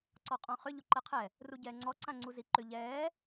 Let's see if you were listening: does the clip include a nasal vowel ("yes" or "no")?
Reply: yes